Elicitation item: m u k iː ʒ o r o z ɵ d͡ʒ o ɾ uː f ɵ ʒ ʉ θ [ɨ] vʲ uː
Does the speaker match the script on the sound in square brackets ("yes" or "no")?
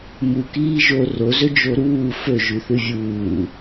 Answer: yes